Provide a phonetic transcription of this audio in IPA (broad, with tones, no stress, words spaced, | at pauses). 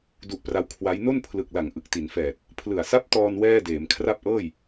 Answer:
du˦˥ʔpra˦˥w kʰwa˦˥j no˥˩npʰlɯ˨˩k̚la˩˦ŋ ʔɯ˨˩k̚ti˩˦nfɛː˨˩t̚ | pʰlɯ˨˩a̯sa˥˩p̚tɔː˧n wɛː˥˩deː˩˦m kʰra˥˩p̚ʔɤː˥˩j